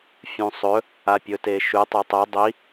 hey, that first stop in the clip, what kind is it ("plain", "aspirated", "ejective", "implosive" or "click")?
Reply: plain